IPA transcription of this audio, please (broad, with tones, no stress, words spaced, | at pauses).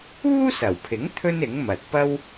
uː˥sɐ˨˩wpʰɪ˨˥ŋ t̪ʰɵ˥nɪ˨˥ŋmɐ˨t̚ pɐ˥w